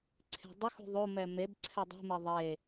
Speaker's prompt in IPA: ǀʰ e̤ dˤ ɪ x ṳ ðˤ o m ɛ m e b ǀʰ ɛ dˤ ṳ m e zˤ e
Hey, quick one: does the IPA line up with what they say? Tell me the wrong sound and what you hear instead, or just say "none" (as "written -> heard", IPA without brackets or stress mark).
zˤ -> ðˤ